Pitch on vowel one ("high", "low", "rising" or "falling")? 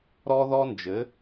high